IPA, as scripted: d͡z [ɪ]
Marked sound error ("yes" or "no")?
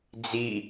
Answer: yes